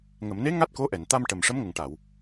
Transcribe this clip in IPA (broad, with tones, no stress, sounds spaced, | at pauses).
ŋ ə˨˩˨ m n e˧˥ ŋ a˦˥ t̚ k o˧˥ ʔ ɛ˨˩˨ n t̪ a˧ m ʈ ə˨˩ m ʂ ə˧˥ m ŋ ə˨˩ ŋ ʈ a˨˩˨ w